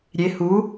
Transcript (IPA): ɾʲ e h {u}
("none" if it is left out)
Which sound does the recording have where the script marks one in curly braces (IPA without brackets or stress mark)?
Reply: u